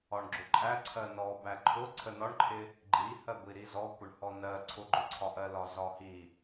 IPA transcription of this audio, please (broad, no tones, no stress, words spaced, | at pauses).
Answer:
ɒɳɡ͡ǁʊǃʼæ ǀʰɜnɔ bæǃʰʊ ǀʰənɒɳǃʰɪ | ɡ͡ǃihɜɡʷi ɾizɔkʷəɳhɔ nɜ ǀʰʊɡ͡ǃʊǀʰɒʔɜ lɒzɒhi